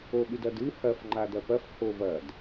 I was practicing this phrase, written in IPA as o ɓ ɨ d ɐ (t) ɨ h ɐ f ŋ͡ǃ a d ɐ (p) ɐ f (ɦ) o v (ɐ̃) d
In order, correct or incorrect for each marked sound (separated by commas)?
incorrect, correct, incorrect, incorrect